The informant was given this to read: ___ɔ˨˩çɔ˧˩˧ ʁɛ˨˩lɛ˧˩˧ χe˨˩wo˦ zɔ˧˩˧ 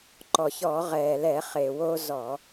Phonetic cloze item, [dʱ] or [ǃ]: ǃ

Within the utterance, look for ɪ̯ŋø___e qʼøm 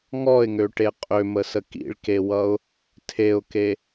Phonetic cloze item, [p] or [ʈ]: ʈ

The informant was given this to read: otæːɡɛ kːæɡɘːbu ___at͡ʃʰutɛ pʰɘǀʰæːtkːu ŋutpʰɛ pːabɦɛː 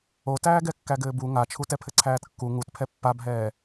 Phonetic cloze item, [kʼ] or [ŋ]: ŋ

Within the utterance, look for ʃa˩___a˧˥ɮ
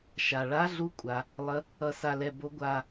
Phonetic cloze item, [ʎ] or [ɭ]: ɭ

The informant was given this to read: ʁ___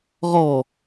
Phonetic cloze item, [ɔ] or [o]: ɔ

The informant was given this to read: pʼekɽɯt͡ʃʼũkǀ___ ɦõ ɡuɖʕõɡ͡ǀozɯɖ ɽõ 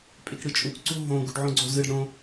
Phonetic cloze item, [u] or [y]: u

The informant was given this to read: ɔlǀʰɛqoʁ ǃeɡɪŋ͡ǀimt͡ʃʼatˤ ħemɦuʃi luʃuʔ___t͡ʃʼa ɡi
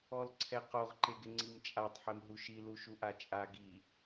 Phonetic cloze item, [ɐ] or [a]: a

